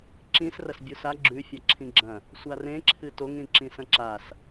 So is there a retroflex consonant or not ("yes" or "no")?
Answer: no